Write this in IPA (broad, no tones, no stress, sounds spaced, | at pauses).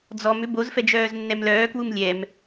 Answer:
d͡z ɔ m ʏ b o z f ɛ d͡ʒ œː z nː ɛ m l œː k w u m lʲ ɛ m